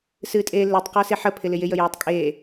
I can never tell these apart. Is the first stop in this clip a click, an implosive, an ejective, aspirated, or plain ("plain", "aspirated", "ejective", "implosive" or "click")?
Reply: ejective